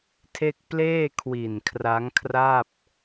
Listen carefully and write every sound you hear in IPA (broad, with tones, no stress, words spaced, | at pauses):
tʰe˥˩k̚ pleː˥˩kʰwi˨˩nkʰra˦˥ŋkʰra˥˩p̚